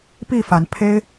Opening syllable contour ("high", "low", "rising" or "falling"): falling